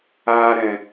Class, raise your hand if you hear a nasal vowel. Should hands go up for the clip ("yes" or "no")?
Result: yes